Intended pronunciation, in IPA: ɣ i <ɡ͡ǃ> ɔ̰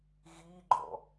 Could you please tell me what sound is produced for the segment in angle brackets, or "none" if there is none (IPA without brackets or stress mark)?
ɡ͡ǃ